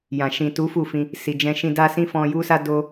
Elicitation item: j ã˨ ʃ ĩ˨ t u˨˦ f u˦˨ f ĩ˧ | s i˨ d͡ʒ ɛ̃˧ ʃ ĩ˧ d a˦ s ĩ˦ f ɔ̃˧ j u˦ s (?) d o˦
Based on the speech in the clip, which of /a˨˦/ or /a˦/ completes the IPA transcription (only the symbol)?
a˦